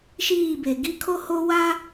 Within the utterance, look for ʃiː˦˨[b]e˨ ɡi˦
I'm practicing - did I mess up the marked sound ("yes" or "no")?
no